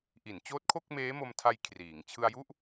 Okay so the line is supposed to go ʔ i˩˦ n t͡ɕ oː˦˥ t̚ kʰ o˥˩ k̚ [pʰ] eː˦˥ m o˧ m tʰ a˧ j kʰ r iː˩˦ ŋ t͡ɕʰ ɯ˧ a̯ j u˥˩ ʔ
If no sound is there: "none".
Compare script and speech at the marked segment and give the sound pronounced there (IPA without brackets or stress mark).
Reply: m